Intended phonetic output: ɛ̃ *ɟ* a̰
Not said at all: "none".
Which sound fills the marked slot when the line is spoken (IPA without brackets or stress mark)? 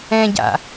ɟ